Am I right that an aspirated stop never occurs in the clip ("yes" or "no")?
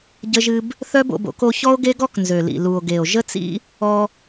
yes